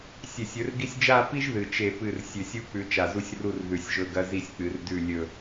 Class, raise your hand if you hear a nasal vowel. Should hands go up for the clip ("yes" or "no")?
no